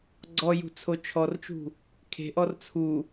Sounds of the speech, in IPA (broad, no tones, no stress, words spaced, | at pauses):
ɡ͡ǀɔjṳ t͡sʰot͡ʃʰɔrt͡ʃṳ | kʰe̤ʔɔr t͡sʰu